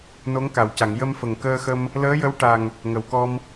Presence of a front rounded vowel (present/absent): absent